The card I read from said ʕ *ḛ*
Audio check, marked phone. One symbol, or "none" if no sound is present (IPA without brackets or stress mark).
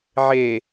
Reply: e